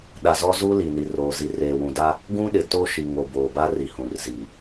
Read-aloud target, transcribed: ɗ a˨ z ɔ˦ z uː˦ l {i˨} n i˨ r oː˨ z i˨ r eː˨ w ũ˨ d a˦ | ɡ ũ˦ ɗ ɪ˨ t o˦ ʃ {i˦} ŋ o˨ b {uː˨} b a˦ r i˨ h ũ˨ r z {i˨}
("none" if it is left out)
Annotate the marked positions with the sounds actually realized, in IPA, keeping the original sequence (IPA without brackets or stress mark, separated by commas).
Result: i˨, i˨, oː˨, i˨